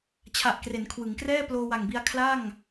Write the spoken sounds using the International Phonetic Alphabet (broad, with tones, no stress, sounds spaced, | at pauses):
t͡ɕʰ a˨˩ ʔ k r e˩˦ n kʰ w ɯ˩˦ ŋ k r ɛː˥˩ p l oː˧ w a˨˩ ŋ b i˧ a̯ kʰ l a˥˩ ŋ